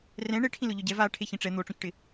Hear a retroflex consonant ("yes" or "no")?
yes